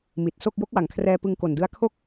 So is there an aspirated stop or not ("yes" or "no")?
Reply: yes